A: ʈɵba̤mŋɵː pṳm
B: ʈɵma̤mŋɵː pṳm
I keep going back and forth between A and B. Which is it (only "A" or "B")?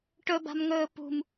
A